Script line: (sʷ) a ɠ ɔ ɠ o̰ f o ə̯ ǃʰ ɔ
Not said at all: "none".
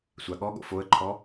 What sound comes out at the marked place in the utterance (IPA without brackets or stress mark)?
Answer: sʷ